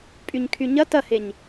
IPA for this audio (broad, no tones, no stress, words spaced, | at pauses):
pʼyɲkʰyɲɐ tɐheɲ